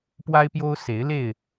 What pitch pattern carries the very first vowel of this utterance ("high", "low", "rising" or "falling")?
high